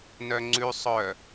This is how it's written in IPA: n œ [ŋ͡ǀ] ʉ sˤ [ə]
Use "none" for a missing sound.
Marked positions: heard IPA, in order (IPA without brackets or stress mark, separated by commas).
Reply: ŋ͡ǀ, œ